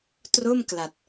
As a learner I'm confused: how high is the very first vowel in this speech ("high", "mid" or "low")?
mid